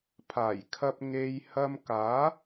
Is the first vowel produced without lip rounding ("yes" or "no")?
yes